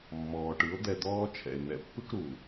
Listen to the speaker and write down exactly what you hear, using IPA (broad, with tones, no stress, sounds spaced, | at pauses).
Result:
mː ɔː˨ ʈ ɯ˨˦ o̯ d̪ ɛ˧ d̪ ɔː˦ t͡ʃʰ ɛ̰˨ e̯ n̪ ɛ̰˨ pː ɯ˦ k ɾ uː˨